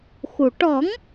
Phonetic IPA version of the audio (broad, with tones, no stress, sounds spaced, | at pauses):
x u˨˩ ʈ ɔ˨˩˦ ŋ